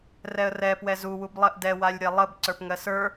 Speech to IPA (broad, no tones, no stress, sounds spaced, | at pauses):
r ɛ ə̯ r ɛ p w ɛ z u w u b lˠ ɜ ʔ d ɛ w a lʲ ɾʲ a lˠ ə b ǀ ə˞ p ŋ ɜ s ə˞